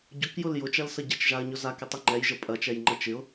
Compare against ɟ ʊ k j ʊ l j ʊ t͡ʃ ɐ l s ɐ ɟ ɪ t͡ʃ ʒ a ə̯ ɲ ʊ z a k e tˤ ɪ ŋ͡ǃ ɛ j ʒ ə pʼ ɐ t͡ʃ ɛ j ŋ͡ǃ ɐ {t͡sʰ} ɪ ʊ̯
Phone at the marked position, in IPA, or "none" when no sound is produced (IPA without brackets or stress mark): t͡ʃ